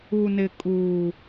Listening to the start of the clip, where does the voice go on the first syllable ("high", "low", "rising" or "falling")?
low